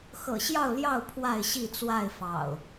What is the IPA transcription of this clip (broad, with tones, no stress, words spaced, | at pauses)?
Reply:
xɤ̰˨˩ɕjɑ˥˨ʊ̯ ljɑ˥˨ʊ̯ pʰwa˥˨ɪ̯ɕi˥˨t͡swa˥˨ɪ̯ fɑ̰˨˩ʊ̯